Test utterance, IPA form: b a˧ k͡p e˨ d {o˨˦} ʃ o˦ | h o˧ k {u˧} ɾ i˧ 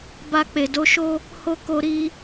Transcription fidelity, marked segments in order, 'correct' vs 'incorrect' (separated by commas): correct, incorrect